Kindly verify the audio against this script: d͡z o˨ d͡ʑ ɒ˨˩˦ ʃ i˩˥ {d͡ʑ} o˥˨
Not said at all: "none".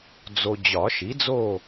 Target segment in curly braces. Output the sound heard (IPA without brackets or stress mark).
d͡z